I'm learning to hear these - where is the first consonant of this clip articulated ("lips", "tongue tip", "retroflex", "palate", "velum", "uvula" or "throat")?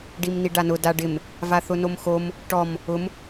retroflex